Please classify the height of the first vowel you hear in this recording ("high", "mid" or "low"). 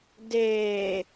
mid